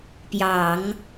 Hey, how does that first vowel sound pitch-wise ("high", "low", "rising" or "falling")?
low